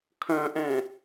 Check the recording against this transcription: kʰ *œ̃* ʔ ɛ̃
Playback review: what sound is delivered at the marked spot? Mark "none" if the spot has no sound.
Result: œ̃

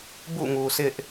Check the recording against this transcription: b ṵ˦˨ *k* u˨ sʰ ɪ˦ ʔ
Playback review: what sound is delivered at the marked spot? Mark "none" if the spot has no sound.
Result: ŋ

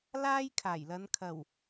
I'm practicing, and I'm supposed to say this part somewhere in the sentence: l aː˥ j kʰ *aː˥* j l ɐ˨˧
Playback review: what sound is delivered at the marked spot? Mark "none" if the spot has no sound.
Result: aː˨˩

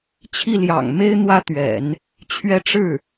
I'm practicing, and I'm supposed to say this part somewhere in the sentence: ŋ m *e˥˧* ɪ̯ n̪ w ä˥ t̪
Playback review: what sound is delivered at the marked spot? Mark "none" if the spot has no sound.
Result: e˥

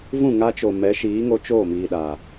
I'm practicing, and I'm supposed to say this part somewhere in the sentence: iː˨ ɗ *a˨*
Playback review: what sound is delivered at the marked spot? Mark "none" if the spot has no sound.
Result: a˨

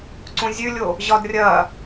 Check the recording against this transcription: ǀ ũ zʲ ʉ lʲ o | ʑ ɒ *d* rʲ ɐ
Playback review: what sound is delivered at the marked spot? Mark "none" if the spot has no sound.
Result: d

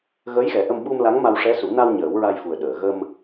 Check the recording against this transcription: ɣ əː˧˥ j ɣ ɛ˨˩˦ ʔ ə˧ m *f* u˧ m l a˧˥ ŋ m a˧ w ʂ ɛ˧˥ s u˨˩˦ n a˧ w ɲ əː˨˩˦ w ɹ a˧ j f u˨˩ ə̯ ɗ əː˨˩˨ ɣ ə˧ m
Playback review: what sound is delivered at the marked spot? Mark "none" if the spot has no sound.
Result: ɓ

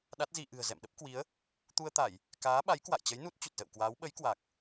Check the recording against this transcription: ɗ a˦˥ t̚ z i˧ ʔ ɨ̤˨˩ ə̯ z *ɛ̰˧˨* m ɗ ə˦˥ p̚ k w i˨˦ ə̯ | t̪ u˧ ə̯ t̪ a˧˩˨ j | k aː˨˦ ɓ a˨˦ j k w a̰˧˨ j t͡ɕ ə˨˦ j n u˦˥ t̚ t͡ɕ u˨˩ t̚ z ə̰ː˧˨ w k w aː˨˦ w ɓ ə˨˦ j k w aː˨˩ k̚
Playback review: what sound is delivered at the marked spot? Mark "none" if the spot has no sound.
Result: ɛ̰˧˨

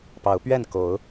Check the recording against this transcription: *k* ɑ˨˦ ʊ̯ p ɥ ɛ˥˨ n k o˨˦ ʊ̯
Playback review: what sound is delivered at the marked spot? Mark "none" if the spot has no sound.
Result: p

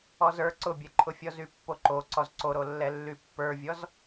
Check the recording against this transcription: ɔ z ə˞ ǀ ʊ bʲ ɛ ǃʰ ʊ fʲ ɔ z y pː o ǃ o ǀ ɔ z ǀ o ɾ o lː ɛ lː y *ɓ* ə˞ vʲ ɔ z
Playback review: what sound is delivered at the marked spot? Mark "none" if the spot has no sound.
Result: pː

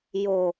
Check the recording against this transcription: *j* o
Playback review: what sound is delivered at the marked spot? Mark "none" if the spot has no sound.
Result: j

